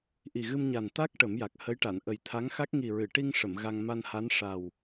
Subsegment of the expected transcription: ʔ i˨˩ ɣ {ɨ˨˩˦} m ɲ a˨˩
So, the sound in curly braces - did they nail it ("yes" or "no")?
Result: no